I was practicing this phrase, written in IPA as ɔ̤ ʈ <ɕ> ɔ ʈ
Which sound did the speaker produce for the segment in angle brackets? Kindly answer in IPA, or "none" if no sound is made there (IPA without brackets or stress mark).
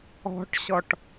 ɕ